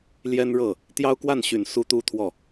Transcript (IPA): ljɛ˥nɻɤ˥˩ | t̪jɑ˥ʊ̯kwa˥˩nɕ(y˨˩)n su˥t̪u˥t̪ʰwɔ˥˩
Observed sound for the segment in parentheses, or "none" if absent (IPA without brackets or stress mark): y˨˩